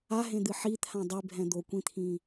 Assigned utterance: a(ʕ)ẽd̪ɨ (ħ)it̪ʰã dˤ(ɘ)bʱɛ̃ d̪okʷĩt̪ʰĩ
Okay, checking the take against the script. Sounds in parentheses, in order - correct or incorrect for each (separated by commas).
incorrect, correct, incorrect